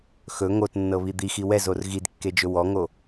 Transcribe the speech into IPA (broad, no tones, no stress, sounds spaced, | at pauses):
x ɵ ŋ o t nː ɤ β i d̪ i x i w ɛ z o r ɣ i d kː e d͡ʒ ɵ w ɔ ŋ o